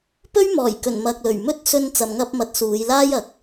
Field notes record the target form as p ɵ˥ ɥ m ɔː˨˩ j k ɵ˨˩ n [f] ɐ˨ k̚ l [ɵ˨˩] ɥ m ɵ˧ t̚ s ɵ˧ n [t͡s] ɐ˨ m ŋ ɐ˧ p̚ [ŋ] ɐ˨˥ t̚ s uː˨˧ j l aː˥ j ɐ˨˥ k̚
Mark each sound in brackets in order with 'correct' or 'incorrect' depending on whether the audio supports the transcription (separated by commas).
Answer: incorrect, correct, correct, incorrect